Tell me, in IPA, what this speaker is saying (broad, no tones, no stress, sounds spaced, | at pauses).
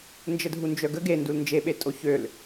n d͡ʒ ə dʱ u n d͡ʒ œ ɡ ə ɡ e n d u l n d͡ʒ e ɓ e tʼ o ç ø l